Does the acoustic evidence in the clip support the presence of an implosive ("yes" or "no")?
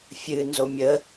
no